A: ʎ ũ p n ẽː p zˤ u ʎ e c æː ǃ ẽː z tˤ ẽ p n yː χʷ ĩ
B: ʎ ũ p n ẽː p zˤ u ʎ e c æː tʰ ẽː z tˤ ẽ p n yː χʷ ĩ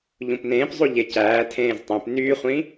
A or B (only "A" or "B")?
B